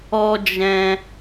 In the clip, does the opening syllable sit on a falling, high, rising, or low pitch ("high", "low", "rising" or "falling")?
high